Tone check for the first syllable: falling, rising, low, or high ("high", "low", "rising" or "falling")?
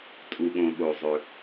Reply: low